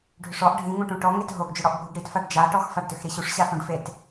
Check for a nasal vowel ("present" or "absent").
present